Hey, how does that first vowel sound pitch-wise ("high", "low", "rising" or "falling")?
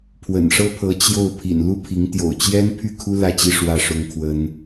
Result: low